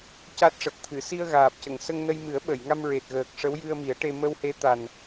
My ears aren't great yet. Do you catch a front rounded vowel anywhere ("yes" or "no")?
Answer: no